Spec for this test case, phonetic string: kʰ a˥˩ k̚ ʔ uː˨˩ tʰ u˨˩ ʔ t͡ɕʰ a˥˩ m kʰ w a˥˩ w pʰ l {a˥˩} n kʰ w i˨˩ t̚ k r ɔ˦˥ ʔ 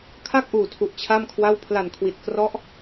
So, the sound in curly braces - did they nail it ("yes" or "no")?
no